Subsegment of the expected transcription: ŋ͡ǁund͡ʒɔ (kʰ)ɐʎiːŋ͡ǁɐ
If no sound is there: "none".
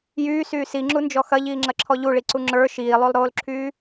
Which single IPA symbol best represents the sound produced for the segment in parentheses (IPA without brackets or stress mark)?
x